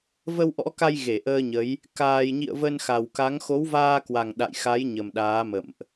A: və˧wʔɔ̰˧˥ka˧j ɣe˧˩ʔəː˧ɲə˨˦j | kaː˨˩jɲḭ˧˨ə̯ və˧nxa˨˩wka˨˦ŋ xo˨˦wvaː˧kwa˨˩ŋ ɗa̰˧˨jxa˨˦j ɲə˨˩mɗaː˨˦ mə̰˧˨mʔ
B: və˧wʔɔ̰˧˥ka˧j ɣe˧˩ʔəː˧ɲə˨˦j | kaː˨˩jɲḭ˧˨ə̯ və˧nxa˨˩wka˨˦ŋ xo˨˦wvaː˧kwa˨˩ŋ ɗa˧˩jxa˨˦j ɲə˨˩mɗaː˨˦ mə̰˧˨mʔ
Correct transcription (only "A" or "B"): A